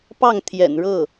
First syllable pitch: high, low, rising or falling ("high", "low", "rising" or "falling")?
falling